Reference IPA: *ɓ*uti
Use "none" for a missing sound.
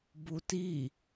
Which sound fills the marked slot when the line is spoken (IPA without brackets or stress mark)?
b